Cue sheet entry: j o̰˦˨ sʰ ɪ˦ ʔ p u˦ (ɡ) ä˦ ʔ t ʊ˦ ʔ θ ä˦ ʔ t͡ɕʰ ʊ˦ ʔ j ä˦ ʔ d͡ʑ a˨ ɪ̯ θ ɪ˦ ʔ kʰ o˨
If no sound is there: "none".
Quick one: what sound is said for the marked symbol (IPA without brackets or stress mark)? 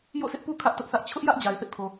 kʰ